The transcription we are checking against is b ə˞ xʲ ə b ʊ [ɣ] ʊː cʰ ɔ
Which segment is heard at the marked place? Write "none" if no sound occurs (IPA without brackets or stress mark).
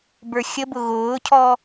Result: ɣ